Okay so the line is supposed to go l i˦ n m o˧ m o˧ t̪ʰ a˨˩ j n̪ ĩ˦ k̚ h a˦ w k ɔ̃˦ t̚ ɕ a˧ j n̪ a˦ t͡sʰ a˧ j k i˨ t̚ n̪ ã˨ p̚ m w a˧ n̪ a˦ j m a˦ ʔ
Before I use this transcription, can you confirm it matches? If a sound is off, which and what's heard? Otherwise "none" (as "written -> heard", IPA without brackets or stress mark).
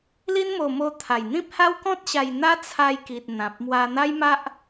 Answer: k̚ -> p̚